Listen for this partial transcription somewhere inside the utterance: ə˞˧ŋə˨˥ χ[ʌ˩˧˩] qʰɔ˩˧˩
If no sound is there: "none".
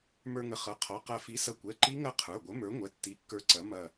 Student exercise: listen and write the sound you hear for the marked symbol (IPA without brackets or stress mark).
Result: ʌ˩˧˩